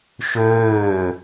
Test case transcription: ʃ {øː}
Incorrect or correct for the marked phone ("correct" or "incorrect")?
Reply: correct